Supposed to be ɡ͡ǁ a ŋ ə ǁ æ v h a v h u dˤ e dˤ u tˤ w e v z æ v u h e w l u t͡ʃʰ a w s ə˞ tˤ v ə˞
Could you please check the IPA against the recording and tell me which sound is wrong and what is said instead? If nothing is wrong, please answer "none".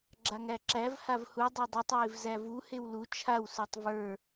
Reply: ə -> æ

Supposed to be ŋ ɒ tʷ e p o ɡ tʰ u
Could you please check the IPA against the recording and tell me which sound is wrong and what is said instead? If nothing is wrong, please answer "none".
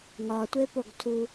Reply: none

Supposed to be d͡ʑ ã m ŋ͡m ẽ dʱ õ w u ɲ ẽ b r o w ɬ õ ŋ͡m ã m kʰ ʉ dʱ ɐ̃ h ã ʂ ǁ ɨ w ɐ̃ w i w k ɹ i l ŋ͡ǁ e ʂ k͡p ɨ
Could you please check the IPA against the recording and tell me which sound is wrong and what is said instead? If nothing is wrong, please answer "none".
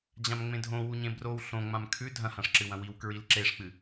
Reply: ŋ͡ǁ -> ǁ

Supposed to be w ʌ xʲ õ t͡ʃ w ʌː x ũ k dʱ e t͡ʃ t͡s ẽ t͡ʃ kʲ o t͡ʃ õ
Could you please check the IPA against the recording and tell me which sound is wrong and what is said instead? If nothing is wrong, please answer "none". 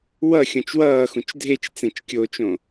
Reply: k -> t͡ʃ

